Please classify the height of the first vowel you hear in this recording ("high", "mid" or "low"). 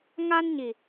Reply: low